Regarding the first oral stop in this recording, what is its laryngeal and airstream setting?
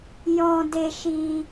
plain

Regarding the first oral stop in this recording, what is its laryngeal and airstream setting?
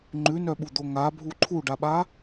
click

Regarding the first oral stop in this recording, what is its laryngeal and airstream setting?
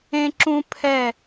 click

